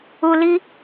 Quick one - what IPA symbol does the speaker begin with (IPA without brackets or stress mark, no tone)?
u